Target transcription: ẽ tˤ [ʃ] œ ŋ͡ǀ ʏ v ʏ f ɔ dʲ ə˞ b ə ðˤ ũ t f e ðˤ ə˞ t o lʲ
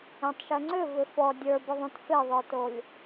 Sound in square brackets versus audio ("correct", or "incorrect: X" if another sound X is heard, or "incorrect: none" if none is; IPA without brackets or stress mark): correct